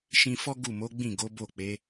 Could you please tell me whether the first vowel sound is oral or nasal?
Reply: nasal